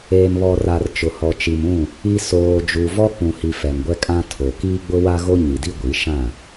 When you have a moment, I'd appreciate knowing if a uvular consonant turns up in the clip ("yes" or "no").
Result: no